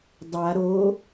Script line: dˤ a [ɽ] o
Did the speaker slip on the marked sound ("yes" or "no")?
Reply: yes